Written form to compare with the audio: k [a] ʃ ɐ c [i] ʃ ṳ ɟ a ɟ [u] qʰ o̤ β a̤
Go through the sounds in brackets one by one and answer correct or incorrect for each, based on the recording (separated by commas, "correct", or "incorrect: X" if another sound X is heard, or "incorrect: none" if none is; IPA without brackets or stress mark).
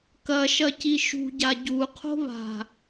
incorrect: ɐ, correct, correct